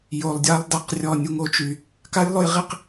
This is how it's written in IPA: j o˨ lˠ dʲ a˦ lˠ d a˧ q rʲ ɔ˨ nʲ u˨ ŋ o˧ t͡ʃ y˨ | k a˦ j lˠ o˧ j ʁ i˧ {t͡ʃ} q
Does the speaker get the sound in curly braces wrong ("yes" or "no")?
yes